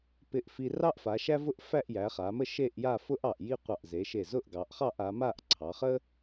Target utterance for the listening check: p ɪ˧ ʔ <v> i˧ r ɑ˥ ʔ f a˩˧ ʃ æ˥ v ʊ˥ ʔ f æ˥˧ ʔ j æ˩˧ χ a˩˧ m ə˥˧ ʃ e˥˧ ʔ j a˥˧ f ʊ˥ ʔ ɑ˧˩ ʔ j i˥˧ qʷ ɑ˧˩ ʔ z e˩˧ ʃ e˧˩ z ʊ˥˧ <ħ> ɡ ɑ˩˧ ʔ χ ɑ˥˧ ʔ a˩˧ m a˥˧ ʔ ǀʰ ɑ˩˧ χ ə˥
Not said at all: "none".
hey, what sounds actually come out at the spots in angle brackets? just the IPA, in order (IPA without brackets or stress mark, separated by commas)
f, ʔ